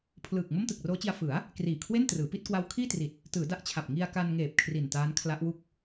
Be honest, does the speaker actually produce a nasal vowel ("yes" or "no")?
no